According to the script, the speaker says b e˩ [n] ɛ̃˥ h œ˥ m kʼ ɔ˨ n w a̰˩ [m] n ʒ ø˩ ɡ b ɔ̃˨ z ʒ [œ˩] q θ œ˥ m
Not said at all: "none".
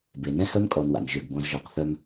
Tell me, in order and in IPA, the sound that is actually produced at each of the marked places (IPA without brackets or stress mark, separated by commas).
n, none, œ˨